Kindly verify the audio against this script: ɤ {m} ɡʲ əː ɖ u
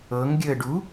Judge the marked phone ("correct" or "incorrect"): incorrect